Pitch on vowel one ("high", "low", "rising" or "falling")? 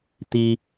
high